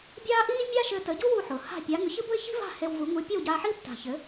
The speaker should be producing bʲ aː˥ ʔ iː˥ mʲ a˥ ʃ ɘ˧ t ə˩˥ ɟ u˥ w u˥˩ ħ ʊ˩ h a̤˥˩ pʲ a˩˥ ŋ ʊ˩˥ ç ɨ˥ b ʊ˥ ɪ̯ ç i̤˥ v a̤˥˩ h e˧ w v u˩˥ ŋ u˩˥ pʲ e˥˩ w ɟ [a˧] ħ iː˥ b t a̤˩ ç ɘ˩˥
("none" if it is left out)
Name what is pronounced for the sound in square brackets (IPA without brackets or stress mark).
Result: aː˧